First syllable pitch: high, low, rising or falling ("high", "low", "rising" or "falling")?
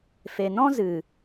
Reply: low